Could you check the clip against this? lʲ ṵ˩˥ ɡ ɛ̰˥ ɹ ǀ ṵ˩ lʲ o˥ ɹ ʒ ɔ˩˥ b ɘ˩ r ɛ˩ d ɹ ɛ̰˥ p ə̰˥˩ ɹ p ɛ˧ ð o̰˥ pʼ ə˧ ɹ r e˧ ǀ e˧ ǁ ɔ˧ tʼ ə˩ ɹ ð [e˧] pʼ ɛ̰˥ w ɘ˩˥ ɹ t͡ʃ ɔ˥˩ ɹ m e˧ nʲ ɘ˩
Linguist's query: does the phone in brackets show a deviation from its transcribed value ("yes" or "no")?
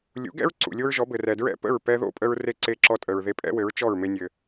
no